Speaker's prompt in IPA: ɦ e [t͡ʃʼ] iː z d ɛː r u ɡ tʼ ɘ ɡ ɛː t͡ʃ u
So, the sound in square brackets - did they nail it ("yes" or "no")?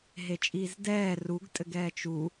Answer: yes